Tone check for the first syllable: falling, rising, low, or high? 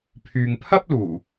low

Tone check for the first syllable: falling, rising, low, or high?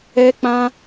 high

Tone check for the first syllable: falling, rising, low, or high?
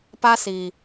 high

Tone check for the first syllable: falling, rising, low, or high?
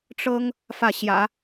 high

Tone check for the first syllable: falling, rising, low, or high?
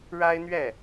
high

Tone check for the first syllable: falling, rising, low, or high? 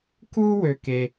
high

